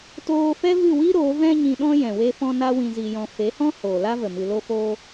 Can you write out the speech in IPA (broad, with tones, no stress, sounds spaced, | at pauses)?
t oː˧ f ɛ˦ v ɨ˦˨ w i˦ ɾ oː˨˦ v ɛ̃˦ ɲ ĩ˧ ɗ ɔ̃˦ j ɛ̃˨ w e˦ f ɔ̃˦ n a˦ w ĩ˧ z i˧ j ɔ̃˧ f e˨˦ h ɔ̃˦ h oː˨ l a˦ v ə˨ m ɨ˧ l o˦ f oː˦